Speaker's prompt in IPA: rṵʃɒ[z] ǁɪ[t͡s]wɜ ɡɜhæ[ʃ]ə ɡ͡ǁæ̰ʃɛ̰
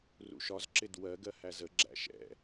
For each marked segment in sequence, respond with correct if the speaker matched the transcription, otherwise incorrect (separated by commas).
correct, incorrect, incorrect